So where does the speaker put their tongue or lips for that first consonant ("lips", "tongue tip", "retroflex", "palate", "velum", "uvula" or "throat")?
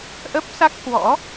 throat